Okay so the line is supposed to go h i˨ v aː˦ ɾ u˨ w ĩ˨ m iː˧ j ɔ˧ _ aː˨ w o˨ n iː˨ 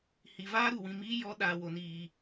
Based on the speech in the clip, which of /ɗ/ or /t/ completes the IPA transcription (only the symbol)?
ɗ